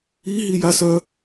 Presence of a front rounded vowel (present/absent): present